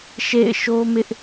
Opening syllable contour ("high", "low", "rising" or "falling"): falling